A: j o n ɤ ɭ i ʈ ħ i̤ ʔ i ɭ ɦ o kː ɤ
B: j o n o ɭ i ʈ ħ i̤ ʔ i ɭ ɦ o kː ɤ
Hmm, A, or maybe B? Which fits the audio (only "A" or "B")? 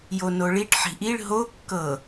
B